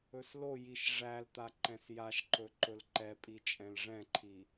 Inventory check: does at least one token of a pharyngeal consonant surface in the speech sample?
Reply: no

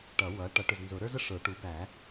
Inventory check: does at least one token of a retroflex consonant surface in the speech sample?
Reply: yes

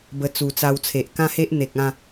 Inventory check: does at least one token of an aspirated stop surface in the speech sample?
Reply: yes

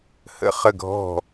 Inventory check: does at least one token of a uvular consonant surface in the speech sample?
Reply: yes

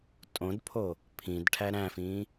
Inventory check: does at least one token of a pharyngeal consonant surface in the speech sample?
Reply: no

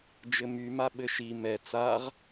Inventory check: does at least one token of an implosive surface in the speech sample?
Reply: yes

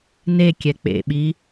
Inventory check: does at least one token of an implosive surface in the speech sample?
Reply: yes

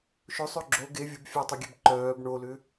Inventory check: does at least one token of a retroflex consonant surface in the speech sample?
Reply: yes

